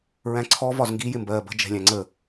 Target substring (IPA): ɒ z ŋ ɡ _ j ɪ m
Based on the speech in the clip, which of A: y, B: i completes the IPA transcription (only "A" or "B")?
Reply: B